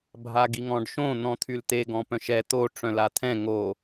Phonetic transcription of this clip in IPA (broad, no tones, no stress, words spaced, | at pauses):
bʱaɡiŋɔ̃ɖʃõ n̪ɔ̃t̪ʰylt̪e ɡɔ̃pœ̃ʃɛ t̪o ʈ͡ʂœ̃lat̪ʰɛ̃ ŋo